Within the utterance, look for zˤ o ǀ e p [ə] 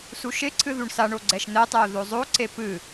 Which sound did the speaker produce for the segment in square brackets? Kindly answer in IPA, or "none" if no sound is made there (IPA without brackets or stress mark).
ɨ